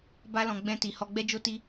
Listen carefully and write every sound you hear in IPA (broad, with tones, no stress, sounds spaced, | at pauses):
b a˦ l ɔ̃˧ ɡ͡b ɛ̃˧ t i˨ h ɔ˧ ɡ͡b ɛ˦ d͡ʒ o˦ t i˦